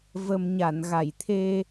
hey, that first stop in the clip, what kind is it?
aspirated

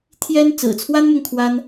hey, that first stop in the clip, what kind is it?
aspirated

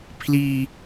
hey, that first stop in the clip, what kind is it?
aspirated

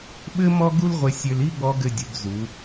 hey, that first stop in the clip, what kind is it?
implosive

